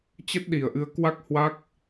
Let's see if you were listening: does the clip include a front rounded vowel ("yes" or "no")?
no